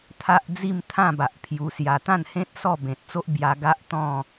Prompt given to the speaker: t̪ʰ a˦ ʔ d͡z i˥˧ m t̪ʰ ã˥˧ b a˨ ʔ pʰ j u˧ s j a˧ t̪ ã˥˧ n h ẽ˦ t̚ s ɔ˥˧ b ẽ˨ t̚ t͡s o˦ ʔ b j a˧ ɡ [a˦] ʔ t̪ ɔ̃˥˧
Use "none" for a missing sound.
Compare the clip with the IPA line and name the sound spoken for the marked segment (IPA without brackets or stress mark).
a˦